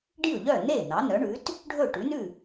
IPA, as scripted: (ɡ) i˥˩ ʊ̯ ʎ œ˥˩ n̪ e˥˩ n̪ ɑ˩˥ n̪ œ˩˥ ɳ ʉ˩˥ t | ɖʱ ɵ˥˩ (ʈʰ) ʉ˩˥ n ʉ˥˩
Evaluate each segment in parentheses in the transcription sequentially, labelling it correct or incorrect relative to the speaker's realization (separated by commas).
incorrect, incorrect